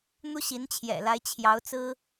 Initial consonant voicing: voiced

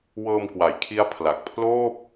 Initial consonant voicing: voiced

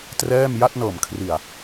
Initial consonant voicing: voiceless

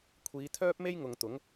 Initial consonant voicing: voiceless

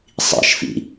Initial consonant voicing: voiceless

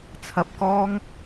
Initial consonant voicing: voiceless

